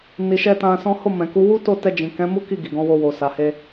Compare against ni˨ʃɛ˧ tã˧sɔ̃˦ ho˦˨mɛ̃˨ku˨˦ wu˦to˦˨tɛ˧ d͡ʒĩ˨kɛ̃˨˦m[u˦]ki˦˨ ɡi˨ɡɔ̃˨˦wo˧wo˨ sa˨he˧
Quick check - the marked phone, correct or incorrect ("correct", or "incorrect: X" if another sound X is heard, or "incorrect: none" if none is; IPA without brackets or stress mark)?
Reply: correct